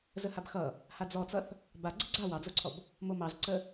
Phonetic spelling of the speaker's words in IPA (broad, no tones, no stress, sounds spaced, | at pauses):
z ə h a b x ʌ | h a d͡z ɔ t͡s ʌ θ | b a ɡ͡ǀ ə ɡ͡ǀ a w ɑ d͡z o ǀʰ ɔ b | m o m ɑ z ǀ ə